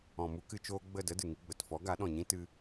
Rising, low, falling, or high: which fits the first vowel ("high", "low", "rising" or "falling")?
low